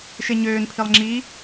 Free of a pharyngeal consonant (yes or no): yes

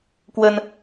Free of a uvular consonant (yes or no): yes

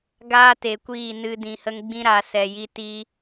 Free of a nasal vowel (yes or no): no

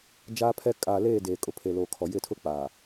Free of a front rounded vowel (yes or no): yes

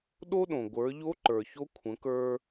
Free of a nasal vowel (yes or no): no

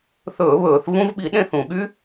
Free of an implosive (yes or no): no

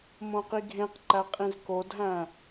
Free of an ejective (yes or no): no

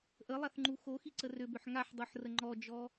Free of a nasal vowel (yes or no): yes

